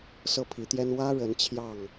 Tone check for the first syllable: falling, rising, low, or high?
falling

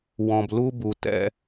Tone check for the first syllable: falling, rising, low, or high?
low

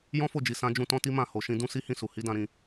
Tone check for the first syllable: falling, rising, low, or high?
high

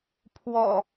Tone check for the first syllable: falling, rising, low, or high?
low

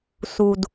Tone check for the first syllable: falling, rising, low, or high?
low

